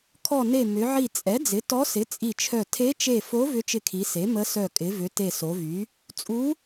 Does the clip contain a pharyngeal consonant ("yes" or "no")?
yes